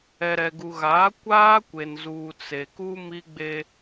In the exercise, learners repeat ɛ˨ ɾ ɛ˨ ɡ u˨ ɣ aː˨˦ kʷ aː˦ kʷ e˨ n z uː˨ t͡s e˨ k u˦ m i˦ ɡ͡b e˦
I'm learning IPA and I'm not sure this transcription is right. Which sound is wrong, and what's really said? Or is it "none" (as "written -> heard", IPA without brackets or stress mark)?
none